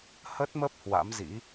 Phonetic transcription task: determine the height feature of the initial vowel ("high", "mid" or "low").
mid